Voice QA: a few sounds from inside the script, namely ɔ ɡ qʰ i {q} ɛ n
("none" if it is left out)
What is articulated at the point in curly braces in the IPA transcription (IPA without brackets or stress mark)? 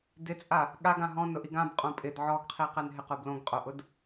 q